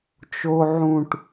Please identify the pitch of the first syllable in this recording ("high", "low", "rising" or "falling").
high